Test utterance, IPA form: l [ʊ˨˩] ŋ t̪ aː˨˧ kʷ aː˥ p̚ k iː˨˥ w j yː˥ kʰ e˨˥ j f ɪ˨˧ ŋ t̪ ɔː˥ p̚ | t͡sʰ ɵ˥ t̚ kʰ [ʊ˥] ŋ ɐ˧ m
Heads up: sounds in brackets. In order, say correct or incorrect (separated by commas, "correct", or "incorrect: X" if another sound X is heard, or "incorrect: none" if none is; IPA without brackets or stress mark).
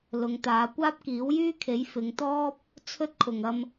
incorrect: ʊ˨˧, incorrect: ʊ˨